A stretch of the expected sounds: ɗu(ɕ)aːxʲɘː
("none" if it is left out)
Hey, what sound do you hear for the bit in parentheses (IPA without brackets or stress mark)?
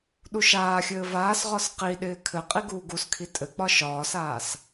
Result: ʃ